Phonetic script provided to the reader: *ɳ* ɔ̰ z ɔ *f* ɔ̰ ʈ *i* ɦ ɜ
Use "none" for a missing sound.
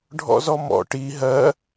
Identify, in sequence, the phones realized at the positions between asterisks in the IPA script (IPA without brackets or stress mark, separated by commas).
ɖʱ, m, i